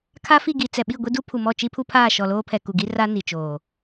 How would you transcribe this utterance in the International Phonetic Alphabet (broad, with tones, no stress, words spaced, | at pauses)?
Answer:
kʰa˦fi˦˨ ɡi˨t͡sɛ˨ɓi˦˨ ɡʷi˦du˦pʰu˨ mɔ˦˨t͡ʃi˦pʰu˦pʰaː˦˨ ʃɔ˨loː˦pʰɛ˨ ku˨ɡi˦ra˦ ni˨t͡ʃoː˨